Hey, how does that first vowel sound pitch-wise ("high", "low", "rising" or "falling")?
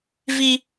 high